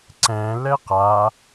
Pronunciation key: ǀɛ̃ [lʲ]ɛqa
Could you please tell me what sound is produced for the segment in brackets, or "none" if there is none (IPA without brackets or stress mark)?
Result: l